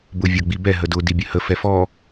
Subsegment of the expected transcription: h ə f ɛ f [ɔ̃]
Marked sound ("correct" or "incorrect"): incorrect